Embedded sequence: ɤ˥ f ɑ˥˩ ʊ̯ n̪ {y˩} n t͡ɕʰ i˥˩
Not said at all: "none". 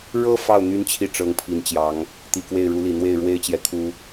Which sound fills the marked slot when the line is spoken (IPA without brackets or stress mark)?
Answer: y˥